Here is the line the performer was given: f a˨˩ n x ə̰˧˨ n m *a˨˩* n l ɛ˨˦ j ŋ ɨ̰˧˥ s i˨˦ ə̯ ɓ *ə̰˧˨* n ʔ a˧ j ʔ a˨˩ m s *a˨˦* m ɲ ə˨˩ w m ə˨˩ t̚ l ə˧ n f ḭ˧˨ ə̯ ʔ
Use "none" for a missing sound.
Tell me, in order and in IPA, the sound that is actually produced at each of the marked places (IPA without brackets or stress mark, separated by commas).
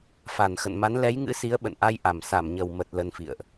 a˨˦, ə̰˧˨, a˧˩